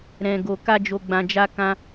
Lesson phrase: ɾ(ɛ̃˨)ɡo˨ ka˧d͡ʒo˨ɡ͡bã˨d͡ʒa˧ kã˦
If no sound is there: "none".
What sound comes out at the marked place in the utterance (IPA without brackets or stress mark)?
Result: ɛ̃˨